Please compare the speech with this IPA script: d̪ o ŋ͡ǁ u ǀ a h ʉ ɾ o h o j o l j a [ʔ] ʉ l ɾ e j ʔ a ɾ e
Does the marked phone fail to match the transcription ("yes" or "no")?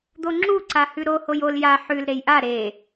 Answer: yes